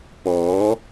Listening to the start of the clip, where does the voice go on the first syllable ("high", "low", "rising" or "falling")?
rising